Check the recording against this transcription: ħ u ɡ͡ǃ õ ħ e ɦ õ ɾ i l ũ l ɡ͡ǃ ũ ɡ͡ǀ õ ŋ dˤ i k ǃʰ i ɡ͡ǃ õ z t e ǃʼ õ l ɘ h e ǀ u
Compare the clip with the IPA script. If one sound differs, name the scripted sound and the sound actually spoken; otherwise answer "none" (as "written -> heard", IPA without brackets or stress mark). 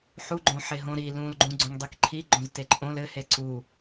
none